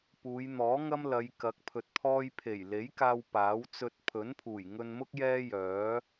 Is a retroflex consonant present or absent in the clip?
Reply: absent